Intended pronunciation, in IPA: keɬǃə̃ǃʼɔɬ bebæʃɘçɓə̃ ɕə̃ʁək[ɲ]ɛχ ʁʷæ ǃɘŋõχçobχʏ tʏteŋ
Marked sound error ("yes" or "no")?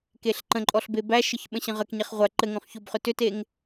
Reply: no